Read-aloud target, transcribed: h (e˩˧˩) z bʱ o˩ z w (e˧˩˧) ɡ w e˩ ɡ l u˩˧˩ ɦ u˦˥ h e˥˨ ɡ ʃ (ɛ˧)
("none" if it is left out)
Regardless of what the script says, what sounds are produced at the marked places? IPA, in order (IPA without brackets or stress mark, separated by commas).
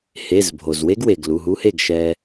e˩˧˩, e˦˥, ɛ˧